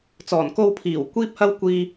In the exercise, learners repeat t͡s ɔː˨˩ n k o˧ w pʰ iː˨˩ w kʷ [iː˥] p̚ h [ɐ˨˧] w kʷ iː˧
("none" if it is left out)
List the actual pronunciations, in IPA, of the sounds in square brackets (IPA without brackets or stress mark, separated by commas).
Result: iː˥, ɐ˥